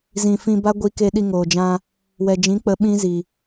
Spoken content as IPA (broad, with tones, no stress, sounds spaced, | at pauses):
z ĩ˨ f ĩ˧ b a˦ ɡʷ i˧ k e˧ ɗ i˧ ŋ oː˨ d͡ʒ ã˧ | w ɛ˨ d͡ʒ ĩ˨˦ k͡p ə˨˦ ɓ ĩ˦ z i˨